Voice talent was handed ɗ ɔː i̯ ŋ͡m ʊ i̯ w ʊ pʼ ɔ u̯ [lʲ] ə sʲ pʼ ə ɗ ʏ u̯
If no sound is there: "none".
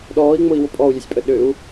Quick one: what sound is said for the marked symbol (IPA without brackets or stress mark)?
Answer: lʲ